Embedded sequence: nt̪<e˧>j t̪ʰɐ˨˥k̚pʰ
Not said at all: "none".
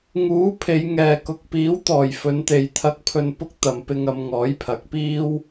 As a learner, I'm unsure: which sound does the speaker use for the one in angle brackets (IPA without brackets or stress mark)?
e˨